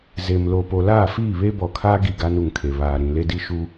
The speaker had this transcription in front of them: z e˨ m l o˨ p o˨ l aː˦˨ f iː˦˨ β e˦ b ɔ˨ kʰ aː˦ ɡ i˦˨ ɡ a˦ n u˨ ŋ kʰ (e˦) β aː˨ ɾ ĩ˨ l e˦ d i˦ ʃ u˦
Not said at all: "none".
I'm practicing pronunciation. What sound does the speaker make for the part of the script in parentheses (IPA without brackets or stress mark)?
e˨